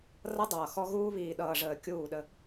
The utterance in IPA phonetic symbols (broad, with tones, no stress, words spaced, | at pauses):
rʌ˦dˤʌː˨xɔ˦ ɣuː˦βiː˨ɗʌː˨ʐəː˨ kʲuː˦˨ɗə˦